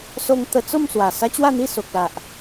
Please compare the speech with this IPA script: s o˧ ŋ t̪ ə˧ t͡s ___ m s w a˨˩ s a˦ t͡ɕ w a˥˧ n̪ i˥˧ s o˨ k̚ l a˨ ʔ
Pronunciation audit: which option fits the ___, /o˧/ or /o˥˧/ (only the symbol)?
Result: o˥˧